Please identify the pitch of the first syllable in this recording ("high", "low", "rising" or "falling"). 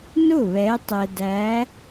falling